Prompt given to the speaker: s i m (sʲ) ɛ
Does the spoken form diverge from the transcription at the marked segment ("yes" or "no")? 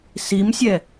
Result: no